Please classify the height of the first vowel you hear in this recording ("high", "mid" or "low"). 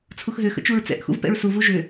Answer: high